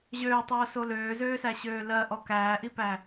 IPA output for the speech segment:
ʑøːtˤoːso løːzøːsæɕøː lɜʔɔ kæːʔipæ

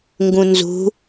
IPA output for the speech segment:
ŋɡũnzṳ

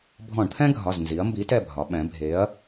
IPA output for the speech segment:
bʱɔ̃˧˩˧ɳt̪ʰɛ̃˥ɡʱɒ˩˧˩znzi˩˧ɐ̯ mbi˨˥tɛ˦˨bʱɒ˩˧ ɓɛ̃˩˧bʱe˨˥ɐ̯

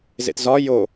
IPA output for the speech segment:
zḛtzɒ jo

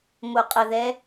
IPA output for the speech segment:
moqʼəðɛ

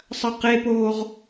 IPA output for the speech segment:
sˤɐqepoːʁ

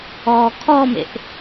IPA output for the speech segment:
ɔːkʰɔmḛʔ

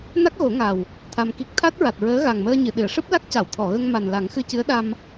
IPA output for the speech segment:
na˦˥k̚ɣo˨˩˦ŋa˨˩w | t̪ʰa˧mki˦˥k̚ t̪ʰa˦˥t̚ɹa˨˩t̚ɹəː˧˥ ɣa˨˩ŋməː˧ɲɨ˨˩˨ ɗɨ˨˩˨ə̯ʂɨ˦˥p̚la˦˥k̚ca˨˩˨w t̪ʰɔ˨˩˨ɣə˧ŋ ma˨˩nla˨˩˦ŋxɨ˧cɨ˧˥ə̯ ɗa˧m

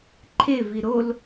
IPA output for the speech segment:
ǃʰevi ɾol

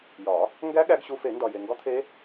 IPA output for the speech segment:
jɒ˨˩˦ | ŋɡæ˦˥ ɠæ˦˥ɡɕu˦˥ fe˨˩˦ndɒ˨je˨ ŋɡɒ˦˥t̪ʰe˦˥

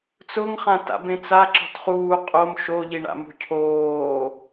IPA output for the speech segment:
t͡sʊŋχãta̰ bẽt͡sa ǁɔ̤tχuː qʼom ʃoʎiɳa̰ mṳcʰoː

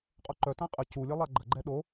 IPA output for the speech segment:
qʼoǃœ tãqʼə culʲɐ lˠaɡ͡ǃəɡ͡ǃɛ ɗo

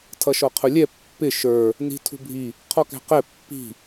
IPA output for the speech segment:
tʰʌʃɔqʰʊlʲɛ pːɪ ʃə˞ | ni̤tʰṳbʱi | qʰɔkæ̤qɛ pːi̤

